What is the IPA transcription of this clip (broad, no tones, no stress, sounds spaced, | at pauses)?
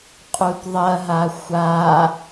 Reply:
qʼ u t ðˤ ɐ ɦ a xʷ a